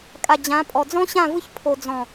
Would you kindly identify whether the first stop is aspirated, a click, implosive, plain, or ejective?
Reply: ejective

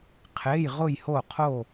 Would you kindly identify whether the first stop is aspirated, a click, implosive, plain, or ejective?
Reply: aspirated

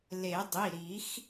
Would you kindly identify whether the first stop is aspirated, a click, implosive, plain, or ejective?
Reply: plain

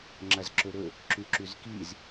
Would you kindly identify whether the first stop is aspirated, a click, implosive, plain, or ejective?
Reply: click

